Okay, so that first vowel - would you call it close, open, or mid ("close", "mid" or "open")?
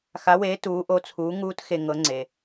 open